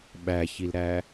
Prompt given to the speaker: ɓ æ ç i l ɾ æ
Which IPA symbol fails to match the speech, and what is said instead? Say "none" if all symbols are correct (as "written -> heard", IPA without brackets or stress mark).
none